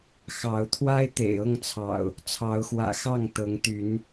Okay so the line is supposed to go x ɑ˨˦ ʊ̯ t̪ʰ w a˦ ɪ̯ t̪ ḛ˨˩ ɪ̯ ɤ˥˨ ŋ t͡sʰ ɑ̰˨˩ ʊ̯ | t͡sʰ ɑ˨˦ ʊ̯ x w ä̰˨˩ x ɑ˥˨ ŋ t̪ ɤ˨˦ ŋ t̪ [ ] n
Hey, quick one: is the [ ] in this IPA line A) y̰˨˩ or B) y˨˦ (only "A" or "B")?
B